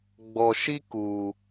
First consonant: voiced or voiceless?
voiced